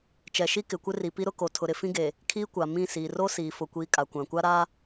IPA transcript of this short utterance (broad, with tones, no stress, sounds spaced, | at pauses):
t͡ʃ ɛ˨ ʃ i˦ k ɪ˨ kʷ ɪ˦ r i˨ p i˦ ɾ ʊ˦ k o˨ tʰ ʊ˨ ɾ ɪ˨ f ĩ˦ ɡ e˨ | kʰ iː˦ kʷ a˨ m ĩ˦˨ s iː˨ r o˦ s iː˨ f ʊ˨ kʷ iː˨ kʼ a˨ kʷ ã˨ kʷ a˦ ɾ a˦